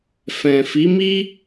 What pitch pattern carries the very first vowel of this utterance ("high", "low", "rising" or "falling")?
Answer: low